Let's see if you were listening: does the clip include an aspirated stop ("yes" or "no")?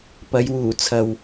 yes